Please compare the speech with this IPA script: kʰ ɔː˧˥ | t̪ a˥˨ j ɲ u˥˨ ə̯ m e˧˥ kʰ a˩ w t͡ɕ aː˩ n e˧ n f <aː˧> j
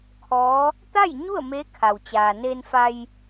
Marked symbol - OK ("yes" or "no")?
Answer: no